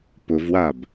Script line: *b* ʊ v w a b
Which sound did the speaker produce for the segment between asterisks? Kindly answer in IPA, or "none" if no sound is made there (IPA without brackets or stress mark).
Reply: p